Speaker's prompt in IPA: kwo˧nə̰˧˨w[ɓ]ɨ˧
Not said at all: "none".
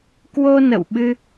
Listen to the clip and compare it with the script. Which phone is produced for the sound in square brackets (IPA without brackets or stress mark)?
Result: ɓ